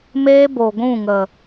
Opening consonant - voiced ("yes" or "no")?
yes